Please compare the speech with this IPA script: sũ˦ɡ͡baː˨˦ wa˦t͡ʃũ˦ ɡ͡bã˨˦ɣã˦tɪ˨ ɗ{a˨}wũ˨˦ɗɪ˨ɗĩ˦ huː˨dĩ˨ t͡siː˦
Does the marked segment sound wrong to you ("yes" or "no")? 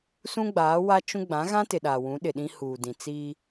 no